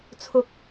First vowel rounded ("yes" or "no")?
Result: yes